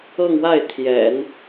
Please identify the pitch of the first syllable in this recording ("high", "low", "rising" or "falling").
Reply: falling